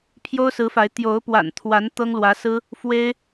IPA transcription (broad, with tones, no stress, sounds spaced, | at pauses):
pʰ j o˥ ʊ̯ s ɹ̩˧˥ f a˧˥ ɪ̯ t̪ j o˧˥ ʊ̯ p w a̰˨˩ n t̪ʰ w a˧˥ n t̪ ɤ˥ ŋ l w ä˧˥ s ɹ̩˥ | f w e˥ ɪ̯